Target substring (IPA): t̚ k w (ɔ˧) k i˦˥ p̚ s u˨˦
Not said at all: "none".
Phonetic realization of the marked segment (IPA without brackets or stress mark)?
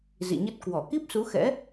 ɔ˧˩